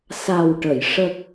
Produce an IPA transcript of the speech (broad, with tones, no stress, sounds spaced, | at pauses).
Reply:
s a˨˩ w ʈ ə˨˩˨ j ʂ ə˨˩ k̚